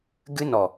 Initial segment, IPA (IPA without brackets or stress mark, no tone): ɡ